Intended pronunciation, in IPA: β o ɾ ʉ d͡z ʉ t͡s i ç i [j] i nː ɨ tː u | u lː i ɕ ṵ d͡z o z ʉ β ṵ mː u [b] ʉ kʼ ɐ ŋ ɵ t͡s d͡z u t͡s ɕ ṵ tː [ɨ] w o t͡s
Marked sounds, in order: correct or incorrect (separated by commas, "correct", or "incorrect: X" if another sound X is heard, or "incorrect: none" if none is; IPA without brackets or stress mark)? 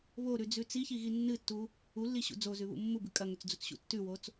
incorrect: ɣ, correct, incorrect: ʉ